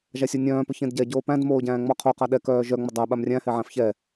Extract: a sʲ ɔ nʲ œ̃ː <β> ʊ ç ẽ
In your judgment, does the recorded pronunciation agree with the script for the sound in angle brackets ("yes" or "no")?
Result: no